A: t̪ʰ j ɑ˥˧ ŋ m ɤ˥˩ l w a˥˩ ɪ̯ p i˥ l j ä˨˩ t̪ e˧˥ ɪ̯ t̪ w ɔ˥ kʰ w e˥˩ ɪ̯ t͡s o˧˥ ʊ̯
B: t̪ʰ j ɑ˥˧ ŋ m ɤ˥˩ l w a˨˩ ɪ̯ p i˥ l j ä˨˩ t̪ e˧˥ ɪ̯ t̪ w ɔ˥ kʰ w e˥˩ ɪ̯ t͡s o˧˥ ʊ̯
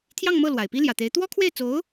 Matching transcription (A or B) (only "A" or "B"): B